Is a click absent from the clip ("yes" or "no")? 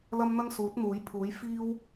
yes